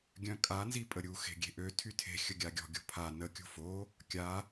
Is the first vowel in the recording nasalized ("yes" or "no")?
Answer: yes